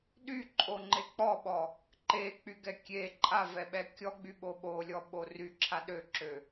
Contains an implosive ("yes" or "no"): yes